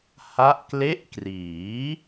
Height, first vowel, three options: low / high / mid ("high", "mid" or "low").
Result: low